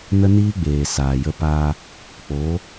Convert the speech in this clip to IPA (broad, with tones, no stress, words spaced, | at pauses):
nə˦niː˦ɡ͡beː˨ saː˨jə˧ pa˧ | k͡po˨˦